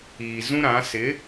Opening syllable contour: low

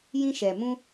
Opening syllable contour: high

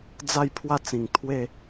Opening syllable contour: falling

